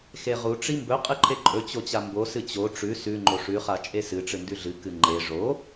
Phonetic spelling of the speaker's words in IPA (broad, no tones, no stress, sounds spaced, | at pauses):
x e ʁ u ʈ͡ʂ i m b ɵ qʼ ɨ ǃʰ e ǃʼ ɵ t͡ɕ o t͡ɕ a m b o s ɨ t͡ɕ o ʈ͡ʂ ʉ s ʉ ŋ͡ǃ o ʂ ʉ χ a t͡ʃʼ e s ɨ ʈ͡ʂ ɨ n d ʉ ɮ ɨ k ɨ ŋ͡ǃ e ʐ o